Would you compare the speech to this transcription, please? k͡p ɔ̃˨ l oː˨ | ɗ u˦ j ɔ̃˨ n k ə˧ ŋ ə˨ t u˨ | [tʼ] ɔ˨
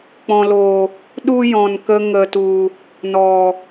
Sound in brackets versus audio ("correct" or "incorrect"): incorrect